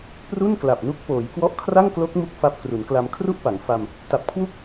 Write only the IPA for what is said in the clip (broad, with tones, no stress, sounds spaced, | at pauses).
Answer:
p r u˥˩ n k l a˨˩ p̚ n u˦˥ k̚ p oː˩˦ j k w ɔ˦˥ ʔ kʰ r a˥˩ ŋ k l o˦˥ k̚ m u˥˩ k̚ f a˦˥ p̚ k r u˩˦ n k l a˧ m kʰ r u˥˩ ʔ p a˩˦ ŋ f a˧ m | t a˨˩ p̚ kʰ w u˥˩ k̚